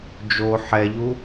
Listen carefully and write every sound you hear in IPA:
d͡ʒo ħɛʎu

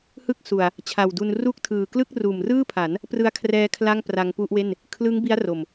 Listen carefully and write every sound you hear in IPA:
hɯ˥˩k̚su˨˩a̯ | t͡ɕʰa˨˩wdu˧n ru˥˩k̚tʰɯː˨˩ klɯ˥˩k̚ruː˨˩mrɯː˥˩pʰa˩˦n | prɯ˧a̯kʰrɛː˧ kʰla˥˩ŋ pra˧ŋpu˥˩ʔwe˥˩n | kʰlɯ˦˥ŋ bi˦˥a̯ro˨˩m

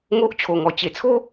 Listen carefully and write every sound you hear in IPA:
ŋo˦ʔ t͡ɕʰo˨˩ŋɔ˨˩ t͡ɕe˨˩t͡sʰo˦

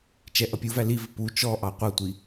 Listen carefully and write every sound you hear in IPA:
t͡ʃɛʔʌpʲuvæ livɪ pu t͡ʃɔ ʔɑqʷʌtʷi

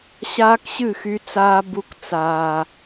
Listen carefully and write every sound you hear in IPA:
ɕaː˦kɕɨ˦˨xy˧t͡saː˧ bu˧kt͡saː˨

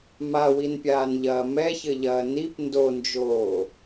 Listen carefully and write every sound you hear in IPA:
mawinpʲaːnʎɐː mɛçɘʎɐː nip ndond͡ʒoː

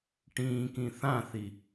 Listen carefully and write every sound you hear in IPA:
ʈĩːkĩ θãθi

